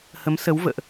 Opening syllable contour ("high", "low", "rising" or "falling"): rising